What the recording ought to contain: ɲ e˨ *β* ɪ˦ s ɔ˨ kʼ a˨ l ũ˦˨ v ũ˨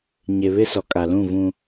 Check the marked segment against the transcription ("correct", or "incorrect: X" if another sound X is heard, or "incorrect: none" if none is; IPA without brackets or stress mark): correct